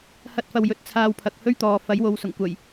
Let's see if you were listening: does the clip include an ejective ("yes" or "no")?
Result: no